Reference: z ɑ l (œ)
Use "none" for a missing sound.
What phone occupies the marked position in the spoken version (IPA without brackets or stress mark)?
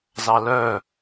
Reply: œ